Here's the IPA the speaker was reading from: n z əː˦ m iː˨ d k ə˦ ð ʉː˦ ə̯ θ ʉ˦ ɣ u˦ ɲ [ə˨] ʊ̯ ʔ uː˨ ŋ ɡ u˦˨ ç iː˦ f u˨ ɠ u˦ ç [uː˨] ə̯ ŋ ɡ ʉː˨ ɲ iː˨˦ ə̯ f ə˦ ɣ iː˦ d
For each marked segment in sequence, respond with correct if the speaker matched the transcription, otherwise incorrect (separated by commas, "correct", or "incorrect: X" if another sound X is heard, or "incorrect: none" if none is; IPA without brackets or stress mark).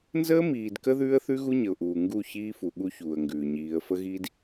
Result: correct, correct